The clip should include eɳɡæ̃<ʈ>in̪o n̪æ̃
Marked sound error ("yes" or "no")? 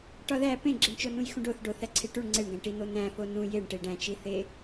no